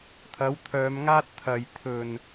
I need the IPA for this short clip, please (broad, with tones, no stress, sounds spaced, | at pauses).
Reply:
t̪ʰ ɐ˨˥ w t̪ʰ œː˨˧ m ŋ aː˥ t̚ t̪ʰ ɐ˨ j t̪ʰ ɵ˨˩ n